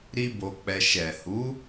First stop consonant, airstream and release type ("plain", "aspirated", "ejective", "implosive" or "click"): plain